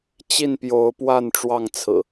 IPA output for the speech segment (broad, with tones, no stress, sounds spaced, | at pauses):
t͡ɕ i˥˨ n p j o˨˦ ʊ̯ p w a˥˨ n ʈ͡ʂ w ɑ˥˨ ŋ t͡sʰ ɹ̩˨˩